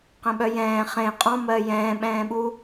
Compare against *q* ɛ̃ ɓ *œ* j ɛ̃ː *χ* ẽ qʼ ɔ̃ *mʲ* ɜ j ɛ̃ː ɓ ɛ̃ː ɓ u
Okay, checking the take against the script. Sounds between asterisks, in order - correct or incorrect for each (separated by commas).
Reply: correct, correct, correct, incorrect